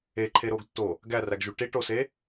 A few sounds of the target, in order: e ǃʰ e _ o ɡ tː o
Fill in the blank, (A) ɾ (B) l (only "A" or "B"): A